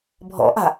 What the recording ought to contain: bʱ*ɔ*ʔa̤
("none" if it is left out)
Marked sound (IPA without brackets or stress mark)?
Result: ɔ̰